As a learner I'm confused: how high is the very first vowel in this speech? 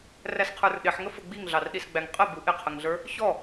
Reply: low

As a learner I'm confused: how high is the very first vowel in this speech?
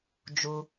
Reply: high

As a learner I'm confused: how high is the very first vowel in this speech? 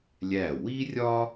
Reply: low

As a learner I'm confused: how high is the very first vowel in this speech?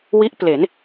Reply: high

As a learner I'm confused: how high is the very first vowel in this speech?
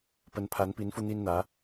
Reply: mid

